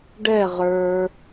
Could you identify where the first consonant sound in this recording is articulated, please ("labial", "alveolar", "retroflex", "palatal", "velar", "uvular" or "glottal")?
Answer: retroflex